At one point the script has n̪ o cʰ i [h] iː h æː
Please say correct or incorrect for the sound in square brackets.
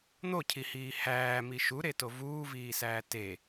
correct